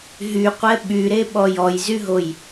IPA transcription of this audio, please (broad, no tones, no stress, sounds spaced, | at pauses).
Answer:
ɦ y qʷ ɛ ɓ y ɾ e ɓ ɔ j ɔ j z y ɦ o j